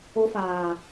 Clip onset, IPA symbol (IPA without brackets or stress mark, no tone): o